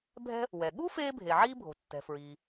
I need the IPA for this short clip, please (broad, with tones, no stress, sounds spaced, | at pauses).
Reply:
bʱ ɛ̤˥ | w ɛ˩ ɠ u˥ f eː˥ bʱ e˩ ʕ iː˥ bʱ o̤˩ tː ɛ̤˩ f ɹ iː˩